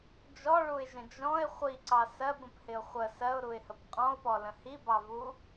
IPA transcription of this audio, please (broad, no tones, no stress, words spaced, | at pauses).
d͡ʒɔɭuɪ̯ʒə̃ d͡ʒɔ̃ɪ̯ χʷiǀɑ sɜbə̃phɪʊ̯ χʷə sɜʊ̯ɾuɪ̯həp qʼɔ̃ʊ̯pɔlə̃ hibɑvu